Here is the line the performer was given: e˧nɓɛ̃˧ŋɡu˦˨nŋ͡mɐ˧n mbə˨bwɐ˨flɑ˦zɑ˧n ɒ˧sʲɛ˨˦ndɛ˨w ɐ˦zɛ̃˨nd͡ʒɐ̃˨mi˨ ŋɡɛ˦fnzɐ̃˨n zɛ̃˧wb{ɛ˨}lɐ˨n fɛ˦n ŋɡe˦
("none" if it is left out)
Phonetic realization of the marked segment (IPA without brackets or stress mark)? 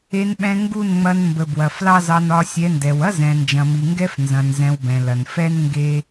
ɛ̃˨